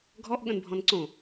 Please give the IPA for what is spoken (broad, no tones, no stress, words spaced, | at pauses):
ɡʱɔʔɠə̃nbʱɔ̃n ǀõ